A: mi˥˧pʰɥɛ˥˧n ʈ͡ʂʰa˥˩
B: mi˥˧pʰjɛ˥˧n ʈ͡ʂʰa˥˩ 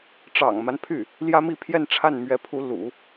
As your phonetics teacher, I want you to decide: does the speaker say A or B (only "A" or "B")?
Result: B